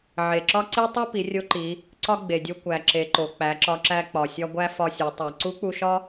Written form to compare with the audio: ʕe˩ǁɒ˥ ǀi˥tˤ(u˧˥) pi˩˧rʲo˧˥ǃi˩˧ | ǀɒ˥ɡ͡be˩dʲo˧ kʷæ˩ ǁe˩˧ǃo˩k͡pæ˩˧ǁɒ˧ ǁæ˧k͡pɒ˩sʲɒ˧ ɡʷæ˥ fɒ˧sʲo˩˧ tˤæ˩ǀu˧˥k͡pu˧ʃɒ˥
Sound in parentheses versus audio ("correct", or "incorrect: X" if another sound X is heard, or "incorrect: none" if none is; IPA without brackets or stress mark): incorrect: u˥